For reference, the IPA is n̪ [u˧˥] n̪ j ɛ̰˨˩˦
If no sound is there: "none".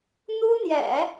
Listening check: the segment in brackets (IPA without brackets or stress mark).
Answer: u˥